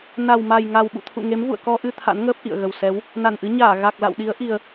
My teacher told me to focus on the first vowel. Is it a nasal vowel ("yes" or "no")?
no